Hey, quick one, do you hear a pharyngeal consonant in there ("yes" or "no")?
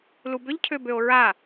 no